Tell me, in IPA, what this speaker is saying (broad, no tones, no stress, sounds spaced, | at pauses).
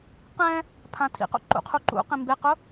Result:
q ɛ̃ | pʰ ã tʰ ḭ q o̰ ǃ ṵ qʰ u ǃ ṵ q ĩ m b e q ʊ